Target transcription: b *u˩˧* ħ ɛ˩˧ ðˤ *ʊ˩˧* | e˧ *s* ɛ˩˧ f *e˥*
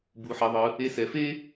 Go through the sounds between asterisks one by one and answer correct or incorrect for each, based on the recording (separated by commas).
correct, incorrect, correct, correct